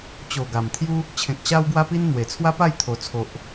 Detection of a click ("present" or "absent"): absent